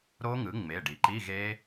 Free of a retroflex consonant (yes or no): no